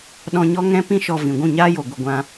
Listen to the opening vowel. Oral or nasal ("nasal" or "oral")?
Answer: nasal